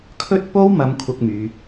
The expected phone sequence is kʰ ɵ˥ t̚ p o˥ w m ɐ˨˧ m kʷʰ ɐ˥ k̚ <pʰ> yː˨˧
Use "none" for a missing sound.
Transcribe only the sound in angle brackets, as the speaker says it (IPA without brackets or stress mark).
m